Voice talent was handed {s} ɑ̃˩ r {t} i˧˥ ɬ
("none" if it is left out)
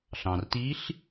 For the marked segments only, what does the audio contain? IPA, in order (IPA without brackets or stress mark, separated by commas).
ɬ, t